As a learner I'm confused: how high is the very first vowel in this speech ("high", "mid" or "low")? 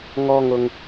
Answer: mid